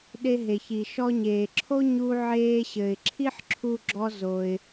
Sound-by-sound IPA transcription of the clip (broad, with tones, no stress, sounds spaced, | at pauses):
ɗ e˧ ɦ e˩ ç i˩ ʃ ɔ˧ ɲ eː˩ ǁʰ o˥ ɲ u˧ ʕ eː˧ ɕ ɘ˩ ɪ̯ ǁʰ i˥ ħ ǁʰ u˧ ɡ͡ǁ ɔ˧ z o˩ ɪ̯